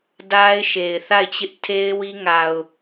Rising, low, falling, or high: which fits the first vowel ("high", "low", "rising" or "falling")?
high